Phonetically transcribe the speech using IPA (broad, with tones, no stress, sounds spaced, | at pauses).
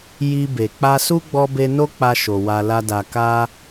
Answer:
j i˧ b e˨ k͡p a˧ s u˦ ɡ͡b ɔ˧ b e˧ n o˦ k͡p a˧ ʃ o˨ w a˧ l a˦ d a˧ k a˦